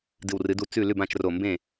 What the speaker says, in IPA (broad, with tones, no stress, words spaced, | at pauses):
dɨ˧˩wrɨ˨˦du˥˩ t͡sʉ˥˩ lʉ˥˩bã˥˩t͡ʃro˧˩ mbẽ˥˩